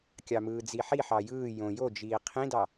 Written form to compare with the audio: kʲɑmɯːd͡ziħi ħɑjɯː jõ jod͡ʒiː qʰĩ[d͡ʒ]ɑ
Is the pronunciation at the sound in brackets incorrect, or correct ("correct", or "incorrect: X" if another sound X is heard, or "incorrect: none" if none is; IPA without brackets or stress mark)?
incorrect: d